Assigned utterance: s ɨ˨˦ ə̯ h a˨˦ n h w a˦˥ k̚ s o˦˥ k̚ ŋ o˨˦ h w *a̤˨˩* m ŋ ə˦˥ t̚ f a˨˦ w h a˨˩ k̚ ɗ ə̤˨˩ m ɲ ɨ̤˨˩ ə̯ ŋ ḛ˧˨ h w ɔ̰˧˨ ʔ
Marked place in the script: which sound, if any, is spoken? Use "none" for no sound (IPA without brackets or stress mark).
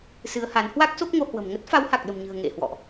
ə̤˨˩